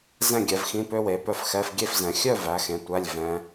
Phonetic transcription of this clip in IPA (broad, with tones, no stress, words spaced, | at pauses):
zɛ̃˥˧ɡʲɛ˩˧vxĩ˧˥˧ pø˥we˩˧ pœ˥˧fxɛ˧˥˧f ɡʲe˥˧fzɛ̃˩˧ xʲœ˥˧væ˩˧xẽ˩˧ tʷæ˧˥˧lʲ vɛ̃˧˥